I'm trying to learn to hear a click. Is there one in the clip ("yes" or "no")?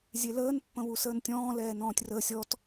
no